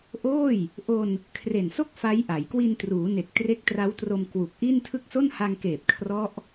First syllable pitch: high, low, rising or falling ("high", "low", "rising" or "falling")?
falling